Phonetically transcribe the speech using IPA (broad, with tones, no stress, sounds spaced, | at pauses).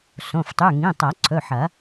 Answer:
s õ˩˧˩ f tˤ ʉ˩˧˩ ŋ ĩ˩˧˩ tˤ ɐ˨˩˦ ǀʰ ɵ˩˧˩ ħ ɐ˨˩˦